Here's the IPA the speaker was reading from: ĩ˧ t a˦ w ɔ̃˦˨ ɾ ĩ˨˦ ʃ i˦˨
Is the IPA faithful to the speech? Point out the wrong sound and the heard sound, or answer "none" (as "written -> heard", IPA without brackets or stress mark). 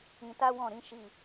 none